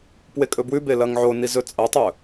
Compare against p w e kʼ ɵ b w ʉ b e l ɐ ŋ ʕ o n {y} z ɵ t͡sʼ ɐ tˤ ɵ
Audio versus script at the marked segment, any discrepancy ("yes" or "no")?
yes